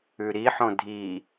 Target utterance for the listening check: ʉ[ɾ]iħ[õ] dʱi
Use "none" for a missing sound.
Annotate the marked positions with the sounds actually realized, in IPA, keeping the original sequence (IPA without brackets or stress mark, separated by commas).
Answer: ɾ, õ